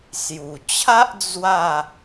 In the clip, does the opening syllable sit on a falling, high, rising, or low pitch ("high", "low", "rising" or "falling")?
low